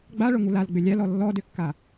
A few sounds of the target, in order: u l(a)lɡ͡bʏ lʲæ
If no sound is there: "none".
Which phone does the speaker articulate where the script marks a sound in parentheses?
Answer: a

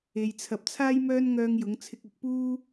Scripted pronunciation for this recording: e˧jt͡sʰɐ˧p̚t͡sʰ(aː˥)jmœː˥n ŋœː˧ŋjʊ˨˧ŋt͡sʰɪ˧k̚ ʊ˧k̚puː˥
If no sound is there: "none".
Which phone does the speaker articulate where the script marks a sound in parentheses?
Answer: aː˥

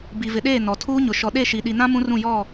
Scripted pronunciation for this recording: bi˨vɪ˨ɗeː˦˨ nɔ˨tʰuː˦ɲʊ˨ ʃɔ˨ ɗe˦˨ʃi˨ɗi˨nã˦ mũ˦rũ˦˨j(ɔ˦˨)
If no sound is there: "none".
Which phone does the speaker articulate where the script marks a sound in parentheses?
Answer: ɔ˦˨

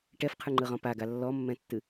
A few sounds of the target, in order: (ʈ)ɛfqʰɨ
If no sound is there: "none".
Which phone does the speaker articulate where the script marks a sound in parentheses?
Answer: ʈ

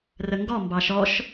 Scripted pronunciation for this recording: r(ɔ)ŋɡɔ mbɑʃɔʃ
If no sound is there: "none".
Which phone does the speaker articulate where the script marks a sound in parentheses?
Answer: ə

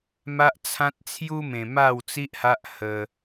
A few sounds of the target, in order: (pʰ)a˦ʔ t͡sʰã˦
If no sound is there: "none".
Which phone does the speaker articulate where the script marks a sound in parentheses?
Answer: m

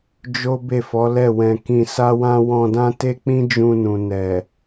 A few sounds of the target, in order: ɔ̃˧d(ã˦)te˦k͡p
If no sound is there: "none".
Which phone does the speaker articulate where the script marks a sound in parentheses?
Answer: ã˦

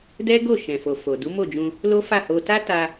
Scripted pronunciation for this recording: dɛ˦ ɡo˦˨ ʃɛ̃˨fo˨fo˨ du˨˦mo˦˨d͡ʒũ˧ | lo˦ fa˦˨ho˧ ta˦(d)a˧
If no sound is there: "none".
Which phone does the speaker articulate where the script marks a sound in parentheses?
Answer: t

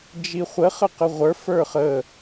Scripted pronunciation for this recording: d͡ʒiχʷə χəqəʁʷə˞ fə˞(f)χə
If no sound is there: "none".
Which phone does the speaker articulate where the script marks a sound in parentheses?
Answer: none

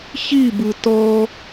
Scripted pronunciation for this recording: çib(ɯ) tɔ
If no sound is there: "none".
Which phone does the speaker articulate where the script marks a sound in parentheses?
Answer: ɯ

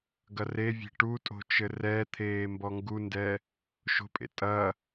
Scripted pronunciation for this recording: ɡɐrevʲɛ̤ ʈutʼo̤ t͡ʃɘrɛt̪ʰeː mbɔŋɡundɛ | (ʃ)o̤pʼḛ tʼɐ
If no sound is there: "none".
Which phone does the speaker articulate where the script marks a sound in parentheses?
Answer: ʃ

